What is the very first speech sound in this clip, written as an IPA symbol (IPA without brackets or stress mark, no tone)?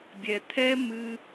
bʲ